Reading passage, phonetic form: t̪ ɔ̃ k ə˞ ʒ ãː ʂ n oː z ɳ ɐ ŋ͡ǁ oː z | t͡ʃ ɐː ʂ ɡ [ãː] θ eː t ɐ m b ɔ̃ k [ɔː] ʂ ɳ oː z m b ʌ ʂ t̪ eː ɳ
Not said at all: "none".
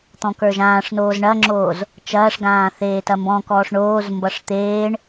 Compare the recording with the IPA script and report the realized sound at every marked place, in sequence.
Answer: ãː, ɔː

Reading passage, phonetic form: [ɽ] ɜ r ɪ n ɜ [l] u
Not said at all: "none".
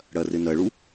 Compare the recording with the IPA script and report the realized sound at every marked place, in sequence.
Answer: ɽ, ɭ

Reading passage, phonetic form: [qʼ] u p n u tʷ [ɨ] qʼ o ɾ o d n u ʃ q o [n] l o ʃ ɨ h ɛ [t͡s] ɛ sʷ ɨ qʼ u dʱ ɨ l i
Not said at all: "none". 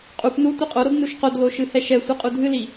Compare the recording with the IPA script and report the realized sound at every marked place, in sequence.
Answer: qʼ, ɨ, d, ʃ

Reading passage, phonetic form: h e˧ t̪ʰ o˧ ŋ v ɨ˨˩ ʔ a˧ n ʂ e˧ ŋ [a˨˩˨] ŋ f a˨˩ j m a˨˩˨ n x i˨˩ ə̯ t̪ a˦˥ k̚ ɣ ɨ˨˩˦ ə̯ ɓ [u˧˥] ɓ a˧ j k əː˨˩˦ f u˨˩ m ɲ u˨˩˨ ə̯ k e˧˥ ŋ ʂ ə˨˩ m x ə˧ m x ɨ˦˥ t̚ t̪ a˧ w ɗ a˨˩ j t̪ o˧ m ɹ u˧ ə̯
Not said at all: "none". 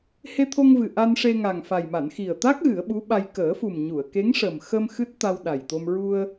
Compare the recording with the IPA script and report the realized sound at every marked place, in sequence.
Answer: a˨˩, u˧˥

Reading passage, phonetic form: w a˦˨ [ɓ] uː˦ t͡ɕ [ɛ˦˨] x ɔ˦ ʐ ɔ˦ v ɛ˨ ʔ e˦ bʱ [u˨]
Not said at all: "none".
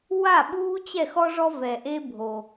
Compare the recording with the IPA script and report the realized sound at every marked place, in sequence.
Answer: ɓ, ɛ˦˨, o˨

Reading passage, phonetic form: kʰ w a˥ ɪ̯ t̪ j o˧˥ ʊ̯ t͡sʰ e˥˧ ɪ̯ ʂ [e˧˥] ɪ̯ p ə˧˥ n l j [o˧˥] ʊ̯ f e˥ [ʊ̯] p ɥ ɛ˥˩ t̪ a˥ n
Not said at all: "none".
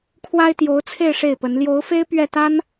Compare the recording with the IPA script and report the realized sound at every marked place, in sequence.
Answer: e˥˩, o˧˥, ɪ̯

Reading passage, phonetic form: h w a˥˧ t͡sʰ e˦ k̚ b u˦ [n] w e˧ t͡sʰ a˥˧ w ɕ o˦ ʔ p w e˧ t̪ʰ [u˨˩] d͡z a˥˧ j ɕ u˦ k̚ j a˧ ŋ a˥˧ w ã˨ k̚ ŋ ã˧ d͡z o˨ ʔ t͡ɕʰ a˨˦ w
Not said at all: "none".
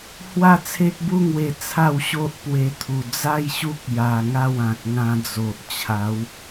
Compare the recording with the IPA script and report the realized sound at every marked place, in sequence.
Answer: ŋ, u˨˩

